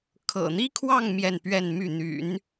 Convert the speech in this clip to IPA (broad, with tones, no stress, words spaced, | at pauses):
kʰɤ̰˨˩n̪i˥kʰwɑ˥˧ŋ mjɛ˥˧npɥɛ˥˧nmy˥˩n̪y̰˨˩˦n